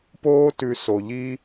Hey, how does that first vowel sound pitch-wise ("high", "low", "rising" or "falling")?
high